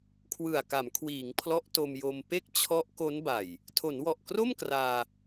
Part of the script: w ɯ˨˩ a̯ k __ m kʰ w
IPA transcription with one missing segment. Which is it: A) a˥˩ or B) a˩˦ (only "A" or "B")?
B